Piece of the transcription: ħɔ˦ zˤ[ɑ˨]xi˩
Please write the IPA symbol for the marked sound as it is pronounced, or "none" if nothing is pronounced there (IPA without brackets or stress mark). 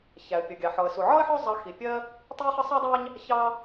ɑ˨